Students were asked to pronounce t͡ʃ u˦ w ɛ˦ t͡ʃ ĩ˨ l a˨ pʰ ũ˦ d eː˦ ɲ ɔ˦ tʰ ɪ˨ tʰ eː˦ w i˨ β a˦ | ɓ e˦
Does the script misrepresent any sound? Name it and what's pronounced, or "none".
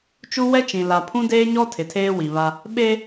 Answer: none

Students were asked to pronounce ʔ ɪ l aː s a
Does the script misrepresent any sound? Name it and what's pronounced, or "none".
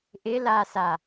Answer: none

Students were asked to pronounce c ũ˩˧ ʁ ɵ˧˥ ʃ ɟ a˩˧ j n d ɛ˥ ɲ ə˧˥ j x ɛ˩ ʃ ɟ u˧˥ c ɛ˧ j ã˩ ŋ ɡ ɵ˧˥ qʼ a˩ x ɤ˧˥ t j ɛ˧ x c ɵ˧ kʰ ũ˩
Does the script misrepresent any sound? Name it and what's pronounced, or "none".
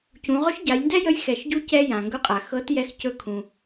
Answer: ɲ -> j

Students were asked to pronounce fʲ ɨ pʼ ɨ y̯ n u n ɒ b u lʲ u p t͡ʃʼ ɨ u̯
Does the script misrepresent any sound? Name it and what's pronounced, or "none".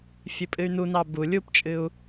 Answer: ɒ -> ɑ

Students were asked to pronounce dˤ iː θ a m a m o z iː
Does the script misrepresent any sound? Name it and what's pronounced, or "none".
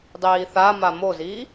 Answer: none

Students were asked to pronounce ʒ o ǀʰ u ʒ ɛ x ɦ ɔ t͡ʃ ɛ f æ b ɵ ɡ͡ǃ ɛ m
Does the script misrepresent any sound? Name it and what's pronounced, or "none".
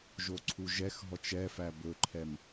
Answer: ɡ͡ǃ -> ǃʰ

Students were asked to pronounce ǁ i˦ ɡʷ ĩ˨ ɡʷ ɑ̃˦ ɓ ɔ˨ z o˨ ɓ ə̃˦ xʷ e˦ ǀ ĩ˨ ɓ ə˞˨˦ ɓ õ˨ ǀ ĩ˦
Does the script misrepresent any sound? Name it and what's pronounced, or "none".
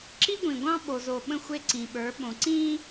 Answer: ɔ˨ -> o˨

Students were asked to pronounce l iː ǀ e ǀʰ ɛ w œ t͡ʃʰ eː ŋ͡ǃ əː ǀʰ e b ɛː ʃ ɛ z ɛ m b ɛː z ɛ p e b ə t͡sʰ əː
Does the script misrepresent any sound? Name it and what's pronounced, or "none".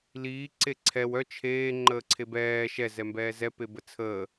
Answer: none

